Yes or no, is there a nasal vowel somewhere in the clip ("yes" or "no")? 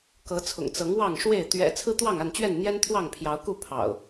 no